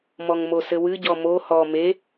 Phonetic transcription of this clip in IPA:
mɔŋmosɘwɨ ɟɔmo hɔ me

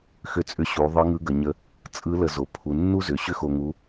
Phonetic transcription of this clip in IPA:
xʏ˧t͡sʼʏ˧ ɕu˩˧ ðˤɯ˧˥ŋɯ˧˥ɡə˩˧ɲə˧˥ | t͡sʼɯ˧˥ lə˧zo˩˧ pʰu˩˧nːu˥zʏ˩˧ ɕʏ˥xo˧ŋu˧˥

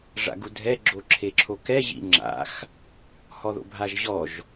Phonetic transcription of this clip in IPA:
ʐa̰ɡudʱɛ ɡ͡ǁoǁʰeǁʰokɛ ʑḭŋ͡ǁa̰x | hɔðo̰bʱaʒʑɔʒ

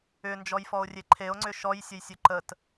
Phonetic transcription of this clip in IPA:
ʏnd͡ʒɔjfɔo̯rʲe ǃʰeo̯ŋ͡ǀʏ ʃɔjsʲəjsʲɵ ǃət

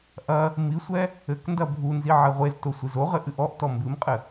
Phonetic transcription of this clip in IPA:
ʔɐ | misʷɛ | ɘkndɐ bʱunzi ʕɛʁʷezto sʷizoʁɘ ʔɨʔɔʔtɔ mbɨmqʼɘ

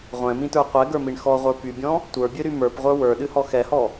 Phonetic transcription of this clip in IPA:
ʁʷɛ̃mĩtə˞ qʷɛɡə˞miɳ xɔʁʷə˞ pybʲɔ̃ | tʷə˞bʲɨɾy mə˞pʁʷə˞ wə˞ɗɨhɔ xɛhɔ

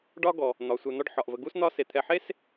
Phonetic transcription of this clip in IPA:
ɖɒ˦ɡɔ˩ | n̪ɒ˩sʷe˨ n̪ɒ˦ɖħɒ˩ʔvə˨ ɡu˥s n̪ɒ˦ se˩t̪ʰɛ˨ħe˥s

